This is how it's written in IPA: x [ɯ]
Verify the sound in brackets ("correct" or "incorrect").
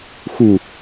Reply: incorrect